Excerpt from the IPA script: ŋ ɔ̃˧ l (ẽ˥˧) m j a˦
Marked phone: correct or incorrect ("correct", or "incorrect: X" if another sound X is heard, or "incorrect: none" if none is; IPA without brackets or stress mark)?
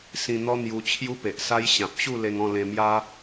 incorrect: ẽ˧